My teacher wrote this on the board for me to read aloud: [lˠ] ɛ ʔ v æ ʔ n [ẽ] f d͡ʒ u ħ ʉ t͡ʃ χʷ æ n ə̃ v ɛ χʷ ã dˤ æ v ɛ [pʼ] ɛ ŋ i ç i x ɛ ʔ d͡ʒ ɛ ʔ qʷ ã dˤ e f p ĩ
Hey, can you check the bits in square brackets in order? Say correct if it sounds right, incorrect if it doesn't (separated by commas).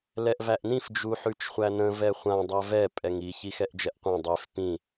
incorrect, incorrect, correct